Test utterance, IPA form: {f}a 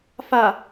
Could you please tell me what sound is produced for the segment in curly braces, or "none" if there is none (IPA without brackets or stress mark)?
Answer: f